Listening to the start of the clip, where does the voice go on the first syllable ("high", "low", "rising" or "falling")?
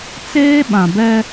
high